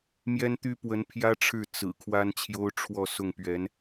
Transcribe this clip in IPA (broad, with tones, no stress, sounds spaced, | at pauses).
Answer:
m j ɛ˥ n t̪ y˥ p w ə˧˥ n pʰ j ä˥ ʈ͡ʂʰ ɻ̩˥˩ t͡s ɹ̩˨˩ kʰ w a˥ n t͡ɕʰ j o˥ ʊ̯ ʈ͡ʂʰ w ɔ˥˧ s ʊ˥˩ ŋ p ɥ ɛ˧˥ n